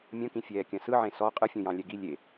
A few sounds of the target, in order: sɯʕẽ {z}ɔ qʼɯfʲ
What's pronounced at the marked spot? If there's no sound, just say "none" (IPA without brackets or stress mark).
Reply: s